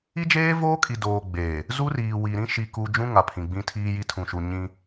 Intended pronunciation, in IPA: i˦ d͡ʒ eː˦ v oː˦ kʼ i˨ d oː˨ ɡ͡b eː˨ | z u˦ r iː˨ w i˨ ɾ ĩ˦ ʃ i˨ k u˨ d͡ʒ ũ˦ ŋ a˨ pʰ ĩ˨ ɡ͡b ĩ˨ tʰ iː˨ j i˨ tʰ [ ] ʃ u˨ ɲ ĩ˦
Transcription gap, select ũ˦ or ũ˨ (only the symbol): ũ˨